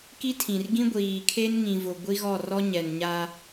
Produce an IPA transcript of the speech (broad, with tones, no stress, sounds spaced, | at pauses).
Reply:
k i˦ tʰ ĩ˨ r ɡ ĩ˦ ɡʷ iː˨ kʰ e˦ n ŋ ĩ˨ v ʊ˨ ɡʷ i˦ ɣ ɔ˦˨ r ɔ˦ ɲ ɛ˨ n ɲ a˦